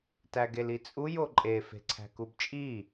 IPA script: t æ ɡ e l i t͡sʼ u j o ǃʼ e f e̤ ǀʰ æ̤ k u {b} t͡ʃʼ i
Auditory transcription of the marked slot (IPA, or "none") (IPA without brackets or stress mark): b